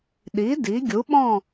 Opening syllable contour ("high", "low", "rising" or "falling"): rising